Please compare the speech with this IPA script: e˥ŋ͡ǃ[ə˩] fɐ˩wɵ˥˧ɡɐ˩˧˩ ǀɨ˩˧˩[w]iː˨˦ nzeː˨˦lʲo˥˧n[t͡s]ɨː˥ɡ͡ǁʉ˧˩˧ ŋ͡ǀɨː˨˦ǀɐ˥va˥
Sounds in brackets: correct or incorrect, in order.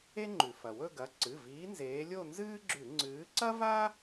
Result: incorrect, incorrect, incorrect

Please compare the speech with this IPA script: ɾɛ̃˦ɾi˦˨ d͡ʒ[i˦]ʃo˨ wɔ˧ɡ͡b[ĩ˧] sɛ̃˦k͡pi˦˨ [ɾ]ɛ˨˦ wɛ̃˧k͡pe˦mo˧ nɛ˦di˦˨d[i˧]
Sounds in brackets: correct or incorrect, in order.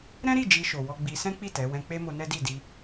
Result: incorrect, incorrect, incorrect, correct

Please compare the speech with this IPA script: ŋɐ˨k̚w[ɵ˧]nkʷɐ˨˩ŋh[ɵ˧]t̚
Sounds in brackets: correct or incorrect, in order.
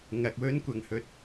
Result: incorrect, correct

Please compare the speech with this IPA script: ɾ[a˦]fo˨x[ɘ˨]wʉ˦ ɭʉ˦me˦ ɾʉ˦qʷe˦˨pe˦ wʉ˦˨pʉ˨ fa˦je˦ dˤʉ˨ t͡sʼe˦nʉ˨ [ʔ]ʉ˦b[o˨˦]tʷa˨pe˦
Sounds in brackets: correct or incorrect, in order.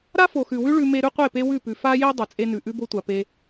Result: correct, incorrect, correct, incorrect

